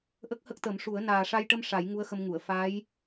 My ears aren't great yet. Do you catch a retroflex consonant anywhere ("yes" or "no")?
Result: yes